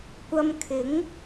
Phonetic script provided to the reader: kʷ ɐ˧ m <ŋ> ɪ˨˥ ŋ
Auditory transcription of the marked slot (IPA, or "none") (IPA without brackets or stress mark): kʰ